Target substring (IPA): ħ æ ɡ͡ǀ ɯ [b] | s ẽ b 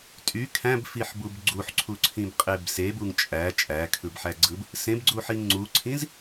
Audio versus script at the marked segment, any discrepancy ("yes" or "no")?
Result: no